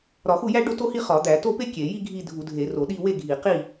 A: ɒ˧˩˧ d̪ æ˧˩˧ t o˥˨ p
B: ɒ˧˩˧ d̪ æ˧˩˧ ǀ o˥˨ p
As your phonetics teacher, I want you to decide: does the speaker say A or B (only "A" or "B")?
A